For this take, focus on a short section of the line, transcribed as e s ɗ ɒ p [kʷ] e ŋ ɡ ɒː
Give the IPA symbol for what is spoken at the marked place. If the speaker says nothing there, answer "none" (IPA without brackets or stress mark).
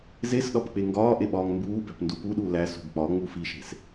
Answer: k͡p